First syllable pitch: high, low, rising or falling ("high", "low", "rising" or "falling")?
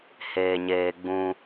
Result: low